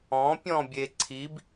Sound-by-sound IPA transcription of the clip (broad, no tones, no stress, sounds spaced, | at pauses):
ɔ̃ pʲ ɔ̃ bʲ e ǀʰ i b